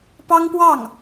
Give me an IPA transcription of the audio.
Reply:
p ɑ˥ ŋ p w ɑ˥˩ ŋ

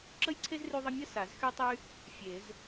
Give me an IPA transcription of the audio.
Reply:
ǁ ə˥ j ǀʰ e˥ z r y˥ ðˤ ə˥ mʲ ə˥ s a˨˩˦ z x y˥ tˤ y˥ | fʲ e˨˩˦ z

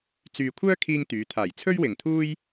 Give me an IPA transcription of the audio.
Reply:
t͡s yː˨ kʷʰ œː˥ kʰ iː˧ ŋ t̪ yː˨˧ t̪ʰ aː˨˩ j t͡sʰ ɵ˥ ɥ w ɪ˨ ŋ t̪ʰ uː˥ j

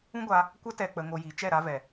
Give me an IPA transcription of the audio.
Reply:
ũ˦ ɡʷ a˧ | kʷ ə˧ t ɛ˨ k͡p ə˧ ŋ o˧ j i˨˦ t͡ʃ ɛ˦˨ ɾ a˧ v ɛ˨

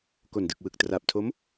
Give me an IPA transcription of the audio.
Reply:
k o˨˩ n d ɯ˨˩ k̚ w ɯ˨˩ k̚ t r a˨˩ p̚ tʰ o˦˥ m

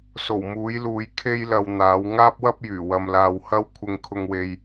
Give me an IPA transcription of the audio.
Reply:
s o˨˩ w m uː˨˥ j l uː˨˧ j kʰ e˥ j l ɐ˧ w n̪ aː˨˥ w ŋ aː˥ p̚ w ɐ˥ p̚ j yː˨˩ w ɐ˧ m l aː˧ w h ɐ˥ w kʷʰ ɪ˥ ŋ kʰ ʊ˥ ŋ w e˥ j

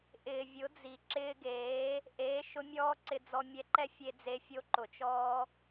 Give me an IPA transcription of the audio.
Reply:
ʔ ɪː˨ vʲ ʊ˨˦ d͡z i˨ ǁ ɪː˧ ɡ eː˨˦ | ʔ eː˨˦ ʃ ʊ˧ mʲ ɔː˦ ǀ ɪ˧ d͡z ɔ˧ mʲ ɛ˧ ǃ ɛ˦ fʲ e˧ d͡z e˧ fʲ o˧ ǃ ʊ˨ t͡ʃ ɔː˧

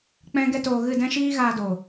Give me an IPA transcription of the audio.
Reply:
k͡p ɛ̃˦ ɡ ɛ˦ t oː˧ ɣ ɨ˦˨ d ɛ̃˦ ʃ iː˦ ɣ aː˧ d oː˨

